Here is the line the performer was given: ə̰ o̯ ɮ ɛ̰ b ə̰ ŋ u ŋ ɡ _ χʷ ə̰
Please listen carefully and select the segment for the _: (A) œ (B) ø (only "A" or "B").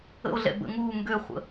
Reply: B